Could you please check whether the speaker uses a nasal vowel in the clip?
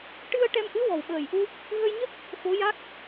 no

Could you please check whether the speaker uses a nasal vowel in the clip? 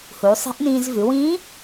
yes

